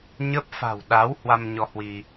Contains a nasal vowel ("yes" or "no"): no